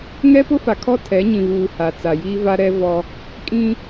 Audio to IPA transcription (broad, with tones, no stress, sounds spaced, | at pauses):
ŋ ɛ˦ p ʊ˦ f a˨ kʰ ɔ˦ tʰ ɛ˨˦ ɲ ĩ˨ β uː˨ h a˨ t͡s a˨ j iː˦ v a˦ ɾ ɛ˦ v ɔ˦ | kʼ ĩ˦